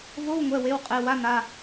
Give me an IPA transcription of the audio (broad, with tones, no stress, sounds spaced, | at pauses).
v o˧˥˧ w ŋʷ ɛ˩˧˩ w e˩˧˩ w qʼ e˩˧˩ w a˧˥˧ n a˩˧˩